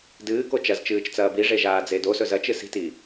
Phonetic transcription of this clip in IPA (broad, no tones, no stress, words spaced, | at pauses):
dɨːko t͡ʃɐzt͡ʃɨːt͡ʃt͡sɐː biʐeʒaːd͡ze dosɵ zɐt͡ʃɨ si̤ti